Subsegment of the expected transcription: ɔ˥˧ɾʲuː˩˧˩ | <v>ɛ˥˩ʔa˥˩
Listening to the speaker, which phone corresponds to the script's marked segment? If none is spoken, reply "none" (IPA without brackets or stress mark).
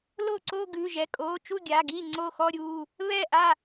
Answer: β